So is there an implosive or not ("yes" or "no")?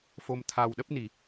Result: yes